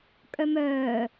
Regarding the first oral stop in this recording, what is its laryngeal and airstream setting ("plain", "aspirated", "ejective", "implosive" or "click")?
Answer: ejective